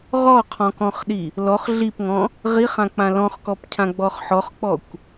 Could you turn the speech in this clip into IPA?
ʁɔqʰɔ̃kɔ̃χɗi | lɔχ ɮipŋɔ̃ | ʁiχãk͡pã lɔ̃χkɔp cʰãɡ͡bɔχħɔχk͡pɔkʷ

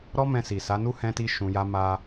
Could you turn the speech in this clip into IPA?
ɾɔ˦ mɛ̃˧si˨sa˨˦nu˦ hɛ̃˧ti˧ ʃũ˧ja˦ma˦

